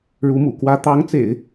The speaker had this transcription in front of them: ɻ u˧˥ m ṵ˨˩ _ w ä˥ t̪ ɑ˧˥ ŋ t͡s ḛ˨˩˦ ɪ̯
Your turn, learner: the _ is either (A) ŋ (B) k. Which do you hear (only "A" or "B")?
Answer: B